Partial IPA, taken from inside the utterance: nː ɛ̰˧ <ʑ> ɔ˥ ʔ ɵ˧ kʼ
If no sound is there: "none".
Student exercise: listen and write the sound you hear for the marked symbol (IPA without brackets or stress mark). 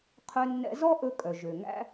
z